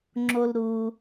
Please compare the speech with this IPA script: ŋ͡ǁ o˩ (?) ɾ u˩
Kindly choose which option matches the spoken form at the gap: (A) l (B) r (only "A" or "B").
A